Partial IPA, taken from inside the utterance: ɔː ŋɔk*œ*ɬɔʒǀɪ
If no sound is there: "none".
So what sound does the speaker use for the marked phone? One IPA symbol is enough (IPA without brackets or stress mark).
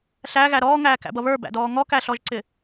æ